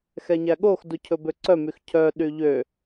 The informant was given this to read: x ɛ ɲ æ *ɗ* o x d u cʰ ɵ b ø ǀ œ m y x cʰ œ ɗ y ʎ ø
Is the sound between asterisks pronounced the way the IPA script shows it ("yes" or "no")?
no